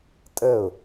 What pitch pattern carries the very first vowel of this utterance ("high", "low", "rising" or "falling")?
falling